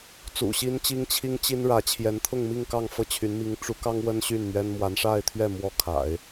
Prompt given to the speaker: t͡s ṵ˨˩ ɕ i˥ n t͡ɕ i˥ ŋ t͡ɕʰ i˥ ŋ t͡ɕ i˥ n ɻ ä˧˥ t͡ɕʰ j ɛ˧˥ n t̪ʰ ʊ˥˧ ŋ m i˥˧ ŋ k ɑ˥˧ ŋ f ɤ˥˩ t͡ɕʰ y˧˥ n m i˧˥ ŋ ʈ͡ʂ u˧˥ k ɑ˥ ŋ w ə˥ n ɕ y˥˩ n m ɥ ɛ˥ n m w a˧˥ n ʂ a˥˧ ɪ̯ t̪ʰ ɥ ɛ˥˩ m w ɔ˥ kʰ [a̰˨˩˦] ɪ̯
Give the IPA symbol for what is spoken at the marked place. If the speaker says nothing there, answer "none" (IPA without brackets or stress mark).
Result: a̰˨˩˦